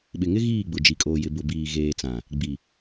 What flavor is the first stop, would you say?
implosive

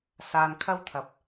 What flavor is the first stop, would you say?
aspirated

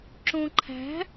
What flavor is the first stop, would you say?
click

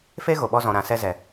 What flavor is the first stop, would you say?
implosive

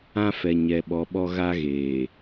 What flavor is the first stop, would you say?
implosive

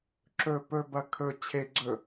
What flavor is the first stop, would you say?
click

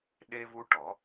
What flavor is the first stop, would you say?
implosive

